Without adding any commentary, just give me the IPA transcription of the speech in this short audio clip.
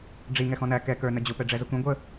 ɖ͡ʐ i ŋ ɛ x ɔ̃ n æ k ɛ k ə˞ n ə d͡ʑ ʊ p ɛ ɖ͡ʐ ɛ z ə kʷ ĩ ɡʷ ə

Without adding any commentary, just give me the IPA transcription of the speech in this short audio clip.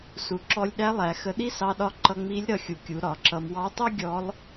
s u˩ ǁ ɔ˧ lʲ ɗ æ˧˥ lˠ æ˩˧ x ə˧ ɗ i˥ s ɑ˧ ɗ ɒ˧ ǃ ʌ˧ ŋ͡m i˧˥ lʲ ɾ ʌ˧ xʲ u˩˧ kʲ u˩˧ ɾ ɒ˩˧ ǁ ʌ˧ m w ɑ˧˥ tˤ i˥ ɡʲ ɔ˧˥ lˠ

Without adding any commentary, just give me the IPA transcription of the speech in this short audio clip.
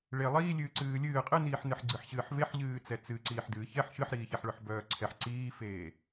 ɭ e lˠ iː lʲ ɨː ǀ ɨː lʲ ɨː qʼ ɨ n iː ħ n ɨ ħ ɡ͡ǀ ɨ ħ ɕ ɨː ħ v e ħ ʎ ɨː t͡s ɛ t͡s ɨ ǀ iː ħ d ɨː ç ɛ ħ ʃ ɨ ħ ɾ iː ç ɛ ħ ɭ œ ħ b œː ǀʰ ɛ ħ ǀ iː f eː

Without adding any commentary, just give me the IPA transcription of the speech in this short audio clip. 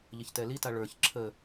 ʎ ə ç t ɛ l i t a ɭ ə˞ ç ǁʰ ə

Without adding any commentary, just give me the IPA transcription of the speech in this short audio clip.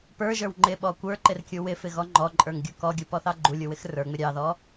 p ə˞ ʒ ə˞ w ŋ͡ǃ ɪ ɓ ɔ kʷ ə˞ ǃ ɪ r kʲ u w ɪ f ɪ ɣ ɔ ŋ͡ǃ ɔ ǃʼ ə˞ ŋ ɡʲ u k ɔ ɡʲ u p ɔ θ ɑ ɡ͡ǃ u lʲ u w ɪ x r ə˞ ŋ͡m ɪ ɾʲ ɑ ð ɔ

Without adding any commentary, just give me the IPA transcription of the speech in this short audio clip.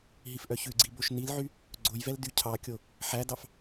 ɦ i f ʔ œ ç ʉ ɡ͡ǀ i b o ʃ n i l ʕ y | ɡ͡ǀ o j v ɛ l d y cʰ ɑ kʲ o | ħ æ d ɑ f

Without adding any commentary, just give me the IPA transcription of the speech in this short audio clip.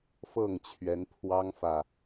f ɤ˥˨ ŋ t͡ɕʰ ɥ ɛ˨˦ n pʰ w ɑ˦ ŋ f ä˨

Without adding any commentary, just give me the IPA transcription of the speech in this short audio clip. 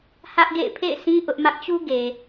h ä˦ ʔ ɡ ḛ˦˨ ɪ̯ pʰ ḛ˦˨ ɪ̯ s ĩ˦ ʔ ʊ˦ ʔ m ä˦ ʔ t͡ɕ u˦ ɡ e˨

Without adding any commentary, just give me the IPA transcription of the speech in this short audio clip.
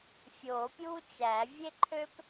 fʲ oː˨˩˦ pʲ uː˥ t͡ʃ æ˨˩˦ vʲ e˥ ǃʰ ø˥ p

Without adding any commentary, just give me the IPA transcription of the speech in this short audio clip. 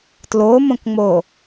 t l o m õ k ŋ͡m o

